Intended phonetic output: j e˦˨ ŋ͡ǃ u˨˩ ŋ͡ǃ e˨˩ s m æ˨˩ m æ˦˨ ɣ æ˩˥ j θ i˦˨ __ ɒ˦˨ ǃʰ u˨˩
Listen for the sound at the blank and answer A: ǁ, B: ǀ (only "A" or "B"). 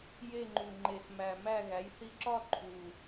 A